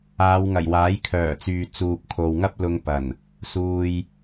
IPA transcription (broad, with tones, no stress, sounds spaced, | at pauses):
aː˨˧ w ŋ ɐ˨˩ j w aː˨˥ j kʰ œː˨˩ t͡s yː˨ t͡s uː˨ p̚ kʰ o˨ w ŋ ɐ˥ p̚ l ʊ˧ ŋ p ɐ˨˩ n | s uː˨ j